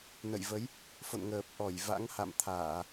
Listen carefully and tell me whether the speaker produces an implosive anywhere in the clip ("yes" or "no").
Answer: no